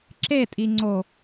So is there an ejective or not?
yes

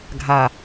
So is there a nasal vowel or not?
no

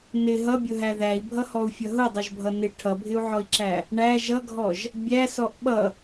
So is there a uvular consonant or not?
no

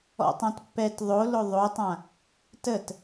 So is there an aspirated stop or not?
no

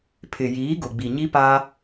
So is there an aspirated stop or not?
yes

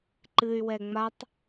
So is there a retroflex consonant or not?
no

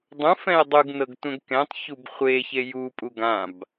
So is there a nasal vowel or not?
yes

